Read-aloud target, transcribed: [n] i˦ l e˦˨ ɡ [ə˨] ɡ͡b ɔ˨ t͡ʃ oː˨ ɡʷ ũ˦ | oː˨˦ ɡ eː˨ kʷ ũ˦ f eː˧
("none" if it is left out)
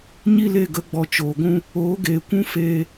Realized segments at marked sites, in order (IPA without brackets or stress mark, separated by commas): ɲ, ə˨˦